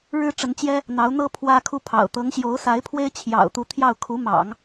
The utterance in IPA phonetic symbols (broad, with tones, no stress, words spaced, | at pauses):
ɻɻ̩˥ʈ͡ʂə˧˥nt͡ɕjɛ˥ | n̪ɑ˧˥ʊ̯n̪ɤ˥ pʰwä˥kʰu˥˩pʰɑ̰˨˩ʊ̯ t̪ɤ˧˥ŋɕjo˧˥ʊ̯sa˧˥ɪ̯ pʰwe˥ɪ̯t͡ɕʰjɑ̰˨˩ʊ̯t̪u˧˥ t̪ʰjɑ˥˩ʊ̯ kʰu˧˥mɑ̰˨˩˦ŋ